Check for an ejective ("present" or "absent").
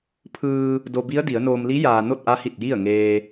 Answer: absent